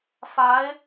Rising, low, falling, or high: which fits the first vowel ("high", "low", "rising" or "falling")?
rising